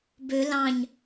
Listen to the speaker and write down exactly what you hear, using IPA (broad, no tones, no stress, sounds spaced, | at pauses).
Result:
b ø l ɑ̃ ɲ